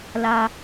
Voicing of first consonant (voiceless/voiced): voiced